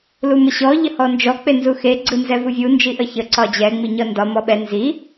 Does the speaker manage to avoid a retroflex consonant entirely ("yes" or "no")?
yes